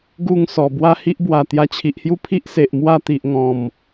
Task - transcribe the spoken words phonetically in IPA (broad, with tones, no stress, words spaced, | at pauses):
ɡu˥˧ŋsɔ˨˩ bwa˦hi˦ʔbwa˨˩ t̪ja˧t͡ɕʰi˨ʔhju˦pʰi˦ʔ se˨ʔmwa˥˧t̪i˨ʔ ŋɔ̃˨˩m